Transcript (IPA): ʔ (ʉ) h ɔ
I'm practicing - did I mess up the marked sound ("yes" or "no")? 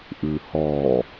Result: no